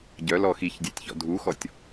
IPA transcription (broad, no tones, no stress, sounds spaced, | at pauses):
ɟ œ l ɔ x i ç dʲ ɛ tʲ ç ɔ̰ dʱ u x ɔ tʲ